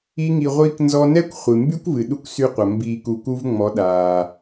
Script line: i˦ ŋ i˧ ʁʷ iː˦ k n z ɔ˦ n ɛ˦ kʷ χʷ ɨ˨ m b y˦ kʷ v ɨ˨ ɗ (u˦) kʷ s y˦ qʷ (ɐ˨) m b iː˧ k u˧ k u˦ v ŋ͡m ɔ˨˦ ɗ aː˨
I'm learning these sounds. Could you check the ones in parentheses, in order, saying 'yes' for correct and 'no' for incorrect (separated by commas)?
yes, yes